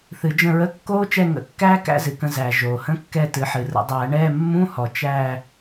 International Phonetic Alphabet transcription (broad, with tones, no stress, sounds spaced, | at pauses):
θ ɨ˨˩˦ d͡ʒ ə̃˦˨ ɹ ə˧˥˧ kː oː˦˥ t͡ʃ ɛ˦˨ ŋ ə̰˨˩˦ kː æː˦˥ k æ̰˦˥ z ɨ˩ k ə̃˦˨ z æ˩ ʒ oː˩ h ə̃˧˥˧ kː ɛ˦˨ t ɨ˩˥ ħ ɨ˩ r ə̰˨˩˦ dˤ æː˨˩˦ ɳ ɛː˧˥˧ mː ũ˧˥˧ h ɔ˩ t͡ʃ æ˦˨